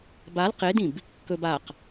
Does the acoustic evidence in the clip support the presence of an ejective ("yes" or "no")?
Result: no